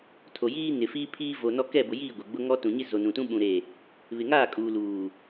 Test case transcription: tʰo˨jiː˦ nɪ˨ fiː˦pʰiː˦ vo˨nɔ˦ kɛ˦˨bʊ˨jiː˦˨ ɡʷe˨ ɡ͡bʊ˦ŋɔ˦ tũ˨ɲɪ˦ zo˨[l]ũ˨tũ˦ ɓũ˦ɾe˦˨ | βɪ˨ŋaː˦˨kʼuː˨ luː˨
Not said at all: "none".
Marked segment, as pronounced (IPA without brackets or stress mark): n